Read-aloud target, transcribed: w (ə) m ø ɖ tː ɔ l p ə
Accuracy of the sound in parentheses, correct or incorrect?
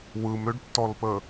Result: incorrect: ɯ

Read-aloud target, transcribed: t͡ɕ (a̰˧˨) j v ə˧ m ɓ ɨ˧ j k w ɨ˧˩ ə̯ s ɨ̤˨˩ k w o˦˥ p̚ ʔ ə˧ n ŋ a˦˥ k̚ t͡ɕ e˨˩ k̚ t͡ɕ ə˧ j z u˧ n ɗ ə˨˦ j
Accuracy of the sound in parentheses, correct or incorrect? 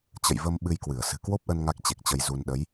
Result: incorrect: ə̰˧˨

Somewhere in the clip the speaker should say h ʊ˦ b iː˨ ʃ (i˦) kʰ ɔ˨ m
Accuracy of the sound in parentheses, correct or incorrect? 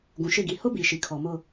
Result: incorrect: i˨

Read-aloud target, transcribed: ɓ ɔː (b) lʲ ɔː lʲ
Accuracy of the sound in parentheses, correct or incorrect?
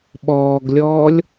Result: incorrect: ɡ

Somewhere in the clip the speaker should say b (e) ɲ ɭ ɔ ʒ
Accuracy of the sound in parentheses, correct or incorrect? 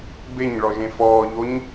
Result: correct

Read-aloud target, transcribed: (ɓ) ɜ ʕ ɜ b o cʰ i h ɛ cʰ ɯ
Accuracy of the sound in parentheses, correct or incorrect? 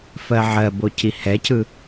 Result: incorrect: f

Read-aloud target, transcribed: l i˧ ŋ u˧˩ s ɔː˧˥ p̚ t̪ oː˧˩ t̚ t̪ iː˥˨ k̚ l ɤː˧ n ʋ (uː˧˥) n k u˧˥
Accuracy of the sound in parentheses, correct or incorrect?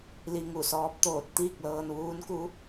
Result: correct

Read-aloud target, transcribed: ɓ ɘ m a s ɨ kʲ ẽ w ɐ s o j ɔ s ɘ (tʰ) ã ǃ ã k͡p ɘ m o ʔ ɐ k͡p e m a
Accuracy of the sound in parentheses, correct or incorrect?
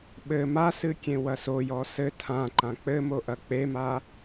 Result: correct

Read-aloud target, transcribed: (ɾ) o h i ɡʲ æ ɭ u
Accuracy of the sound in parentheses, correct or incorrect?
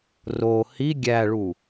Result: incorrect: r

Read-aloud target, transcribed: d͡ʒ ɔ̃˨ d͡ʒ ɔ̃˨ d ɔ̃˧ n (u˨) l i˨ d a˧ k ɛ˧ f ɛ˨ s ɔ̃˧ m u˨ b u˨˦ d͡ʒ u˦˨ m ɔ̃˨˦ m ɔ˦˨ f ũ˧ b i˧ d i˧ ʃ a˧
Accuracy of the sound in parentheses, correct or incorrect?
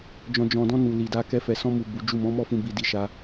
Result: correct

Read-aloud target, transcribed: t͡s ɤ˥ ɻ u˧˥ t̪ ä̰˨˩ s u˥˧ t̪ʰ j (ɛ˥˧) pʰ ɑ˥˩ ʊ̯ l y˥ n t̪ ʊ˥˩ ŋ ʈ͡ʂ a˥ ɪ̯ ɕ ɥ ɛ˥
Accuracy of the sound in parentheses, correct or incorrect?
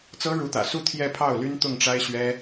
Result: correct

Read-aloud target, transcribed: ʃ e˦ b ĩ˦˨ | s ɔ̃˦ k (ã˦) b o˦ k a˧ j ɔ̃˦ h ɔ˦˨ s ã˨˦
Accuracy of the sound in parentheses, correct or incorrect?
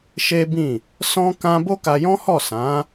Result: correct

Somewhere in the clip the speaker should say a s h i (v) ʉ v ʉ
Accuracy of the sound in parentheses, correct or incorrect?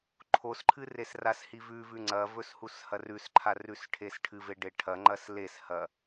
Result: correct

